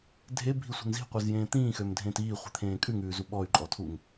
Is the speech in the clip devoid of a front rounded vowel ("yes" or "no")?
no